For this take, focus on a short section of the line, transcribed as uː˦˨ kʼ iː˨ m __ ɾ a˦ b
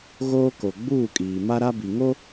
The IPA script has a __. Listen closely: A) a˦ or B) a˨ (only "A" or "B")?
A